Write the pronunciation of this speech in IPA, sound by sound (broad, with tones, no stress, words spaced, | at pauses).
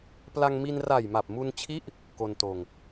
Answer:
pla˧ŋmi˧n ra˨˩jma˨˩p̚mu˧nt͡ɕʰi˦˥ʔ | ko˧ntoː˧ŋ